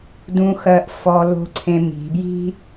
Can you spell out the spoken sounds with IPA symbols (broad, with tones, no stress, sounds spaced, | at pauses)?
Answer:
d ũ˧˥ x ɜ˧ ʔ f ɔ˧ l o̤˧˥ ǀʰ ẽ˧ m i̤˩˧ b j i̤˥